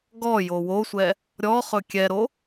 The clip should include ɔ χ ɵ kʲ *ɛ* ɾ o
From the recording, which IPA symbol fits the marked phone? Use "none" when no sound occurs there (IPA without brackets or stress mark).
ɛ